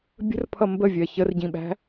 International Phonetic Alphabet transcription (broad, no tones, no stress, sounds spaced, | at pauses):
bʲ ə̤ r pʰ ʌ m b ə vʲ ɜ ç ə r ɟ ĩ ɓ æ̤